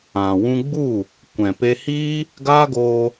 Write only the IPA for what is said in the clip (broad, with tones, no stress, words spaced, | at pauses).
ã˨ wũ˧ɡ͡bu˦˨ | kʷɛ̃˨pe˧hiː˦ | ɡa˦ɡoː˧